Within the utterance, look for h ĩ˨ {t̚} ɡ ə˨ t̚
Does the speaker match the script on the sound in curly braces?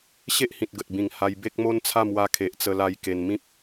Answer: yes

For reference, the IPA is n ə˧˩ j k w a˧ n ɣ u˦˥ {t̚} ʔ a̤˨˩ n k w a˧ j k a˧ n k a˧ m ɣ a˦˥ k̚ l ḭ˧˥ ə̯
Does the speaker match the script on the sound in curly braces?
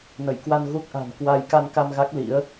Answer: no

